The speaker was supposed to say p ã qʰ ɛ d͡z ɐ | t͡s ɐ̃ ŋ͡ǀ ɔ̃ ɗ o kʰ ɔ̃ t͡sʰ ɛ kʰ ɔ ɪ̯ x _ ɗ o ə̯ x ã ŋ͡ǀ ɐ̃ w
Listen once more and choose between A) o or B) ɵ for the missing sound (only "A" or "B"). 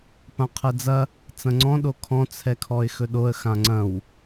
B